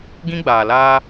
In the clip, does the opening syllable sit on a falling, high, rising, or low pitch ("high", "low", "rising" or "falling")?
high